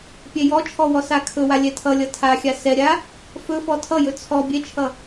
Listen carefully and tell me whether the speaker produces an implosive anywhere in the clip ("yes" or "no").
no